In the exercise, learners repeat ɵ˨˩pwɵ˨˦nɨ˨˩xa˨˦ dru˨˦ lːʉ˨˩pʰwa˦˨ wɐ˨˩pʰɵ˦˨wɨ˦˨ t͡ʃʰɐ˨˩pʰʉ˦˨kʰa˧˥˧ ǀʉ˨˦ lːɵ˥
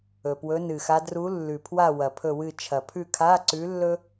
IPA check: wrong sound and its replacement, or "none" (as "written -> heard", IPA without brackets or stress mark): none